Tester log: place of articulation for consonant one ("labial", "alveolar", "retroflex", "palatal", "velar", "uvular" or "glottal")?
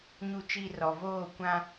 palatal